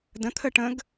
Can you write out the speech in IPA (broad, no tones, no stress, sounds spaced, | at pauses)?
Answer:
d ə̃ t̪ʰ ə ʈ ə̃ ɡ